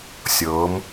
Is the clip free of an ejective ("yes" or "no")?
yes